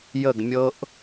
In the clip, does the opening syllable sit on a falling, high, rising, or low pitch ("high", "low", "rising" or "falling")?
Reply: falling